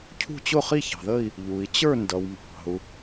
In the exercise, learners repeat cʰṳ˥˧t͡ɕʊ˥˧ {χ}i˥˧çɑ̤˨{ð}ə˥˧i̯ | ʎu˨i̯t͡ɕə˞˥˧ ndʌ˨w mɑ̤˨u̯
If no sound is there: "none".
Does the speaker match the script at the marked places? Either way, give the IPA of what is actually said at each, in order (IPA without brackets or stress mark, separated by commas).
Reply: χ, ð